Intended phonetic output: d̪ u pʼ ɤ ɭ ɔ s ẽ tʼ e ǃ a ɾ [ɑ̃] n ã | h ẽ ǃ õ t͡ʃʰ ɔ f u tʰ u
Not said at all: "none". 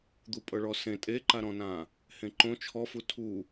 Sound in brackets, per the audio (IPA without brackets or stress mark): ɔ̃